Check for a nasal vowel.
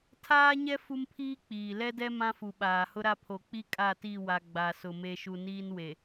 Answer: present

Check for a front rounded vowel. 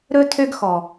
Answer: present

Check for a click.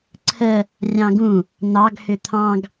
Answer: present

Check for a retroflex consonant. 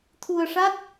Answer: present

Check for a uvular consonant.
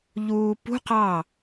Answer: present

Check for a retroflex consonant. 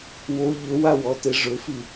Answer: present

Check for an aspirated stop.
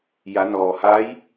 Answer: absent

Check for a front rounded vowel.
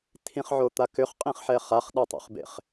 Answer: present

